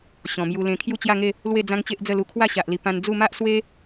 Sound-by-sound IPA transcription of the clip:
ɕ ɔ̃˨˩ m j u˧ l ẽ˧ kʰ j u˥˧ t͡ɕ j a˥˧ ŋ e˥˧ | l w e˥˧ d͡z ã˦ ŋ t͡ɕ e˦ ʔ d͡z ə˥˧ l u˧ kʰ w a˥˧ ɕ a˨ ʔ l i˨˩ p ã˧ n d͡z u˥˧ m a˦ ʔ s w e˦

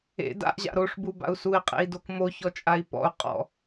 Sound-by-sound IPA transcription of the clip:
ḛ d a̰ ʔ ʑ a̰ ɾ o ʂ b u b a̰ u̯ s u i̯ qʼ ḛ i̯ d o k m o ç ɔ t͡ʃʼ a i̯ p ɔ̰ u̯ qʼ ɔ̰

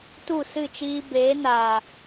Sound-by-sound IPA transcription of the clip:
t u˦˨ s ɨ˦˨ t͡ʃ iː˧ b eː˨˦ n aː˨

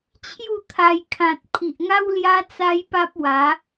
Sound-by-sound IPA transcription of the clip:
t͡ɕʰ j u˥˧ t̪ʰ a˧ j kʰ ã˨ t̚ pʰ i˨ ʔ ŋ a˦ w l j a˦ t͡s a˦ j p a˦ p̚ w a˨˦

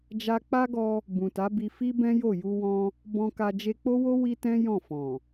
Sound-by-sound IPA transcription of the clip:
d͡ʒ a˧ k͡p a˦ ɡ ɔ˧ | b ũ˨ t a˨˦ b i˧ f i˦ b ɛ̃˦ j o˦˨ j u˧ w ɔ̃˧ | b ɔ̃˧ k a˧ d͡ʒ e˧ k͡p o˦ w o˦ w i˦ t ɛ̃˦ j ɔ̃˦˨ f ɔ̃˨

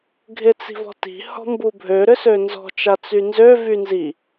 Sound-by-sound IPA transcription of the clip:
ɡʱ ɪ t͡s i̤ v ɔ̤ t i̤ h ɔ̤ m b u bʱ ø ɾ ʏ s ø n z ɔ̤ t͡ʃ a t͡s y n z ø v y n z i

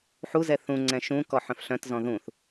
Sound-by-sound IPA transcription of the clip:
ħ u z ɛ θ ũ ŋ͡ǀ ɛ̃ ʃ ũ k ɔ ħ œ̃ f ɬ œ̃ t z ɔ̃ ð ũ θ

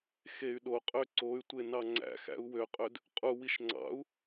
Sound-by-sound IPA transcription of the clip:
x e y̯ ɗ o qʼ ø ǀ o y̯ tʷ e n ɑ ŋ͡ǀ æ̰ x æ̰ u̯ w ø qʼ ø d | qʼ u w i ʃ ŋ͡ǀ ɑ̰ u̯

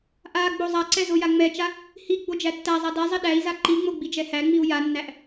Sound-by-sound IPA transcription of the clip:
ʔ a ɡ͡b o zˤ a ǀ ɛ z o j a ŋ͡m ɛ t͡ʃ a | h i ɡ͡b o d͡ʒ æ tː æ zˤ a d ɛ zˤ i ɗ æ i̯ z a ǃ i ŋ͡m o ɡ͡b i d͡ʒ ɛ h æ ŋ͡m i u̯ j a nː æ ʔ

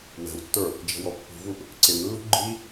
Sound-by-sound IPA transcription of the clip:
w ɛ̤ w tː ə˞ | d͡ʒ ɛ̤ w ɔ pː ṳ v u ʔ | ǀ ɪ m lː ṳ ɡ͡ǃ i

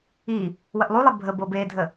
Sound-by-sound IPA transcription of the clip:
i | w ə ʔ lˠ u lˠ e bʱ ə b ɤ b e dʱ ə

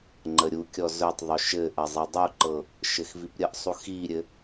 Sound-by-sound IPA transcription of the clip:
ŋ͡ǃ ə ɾʲ u kʲ ɔ z ɵ tˤ ðˤ ɵ ʃ ɘ ʔ ɐ zˤ e dˤ u ǃ ɤ | ʃ ɘ x v i p ɾʲ ə ʔ sˤ u x i ɾʲ ɘ

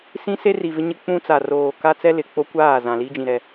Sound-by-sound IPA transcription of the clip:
s ĩ˦ s e˦ r i˨ v ɪ˦ ɲ ɪ˦ k͡p ũ˦ t͡s a˨ r oː˨ k a˦ t͡s ɛ˦ l ɪ˨ k͡p o˦ kʷ aː˦˨ z ã˨ l iː˦ d͡ʒ ĩ˨ ɾ ɛ˦˨

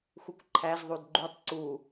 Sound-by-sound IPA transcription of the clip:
x u kʷ ǃʰ æ z ðˤ u d ɡ͡ǃ u tˤ ǀ u

